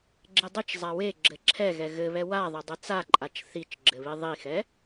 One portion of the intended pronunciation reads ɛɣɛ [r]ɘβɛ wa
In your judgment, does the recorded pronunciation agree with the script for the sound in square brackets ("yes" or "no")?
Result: no